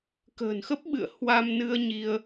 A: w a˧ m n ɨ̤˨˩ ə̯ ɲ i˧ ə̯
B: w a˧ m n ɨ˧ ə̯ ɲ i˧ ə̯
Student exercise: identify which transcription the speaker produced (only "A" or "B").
B